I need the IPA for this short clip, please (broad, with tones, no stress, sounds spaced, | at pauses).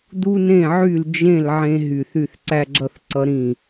d u˦ n ẽ˦˨ ʕ y˦˨ l d͡ʒ ẽ˦˨ l ʕ ẽ˦ ɦ y˦˨ θ y˦˨ θ ǀ æ˦ ɡ͡ǁ ʌ˦ θ ǀ ʌ˦ ɾ ĩ˦˨